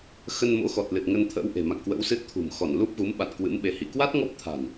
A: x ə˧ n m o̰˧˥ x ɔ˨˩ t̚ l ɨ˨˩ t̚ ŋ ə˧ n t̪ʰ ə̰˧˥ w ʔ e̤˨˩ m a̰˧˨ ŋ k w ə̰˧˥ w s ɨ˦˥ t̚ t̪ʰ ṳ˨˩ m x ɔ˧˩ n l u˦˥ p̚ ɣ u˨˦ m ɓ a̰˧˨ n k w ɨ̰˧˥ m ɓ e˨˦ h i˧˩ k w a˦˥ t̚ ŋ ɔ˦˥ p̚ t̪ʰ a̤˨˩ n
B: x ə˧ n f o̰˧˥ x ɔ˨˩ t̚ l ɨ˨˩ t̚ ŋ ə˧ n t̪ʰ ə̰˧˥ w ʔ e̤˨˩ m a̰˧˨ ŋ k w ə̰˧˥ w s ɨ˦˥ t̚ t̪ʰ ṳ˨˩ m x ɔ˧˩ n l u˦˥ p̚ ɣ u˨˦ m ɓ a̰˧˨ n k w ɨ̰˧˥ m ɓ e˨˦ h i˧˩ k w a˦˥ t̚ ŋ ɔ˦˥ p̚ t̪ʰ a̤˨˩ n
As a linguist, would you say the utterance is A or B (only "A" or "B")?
A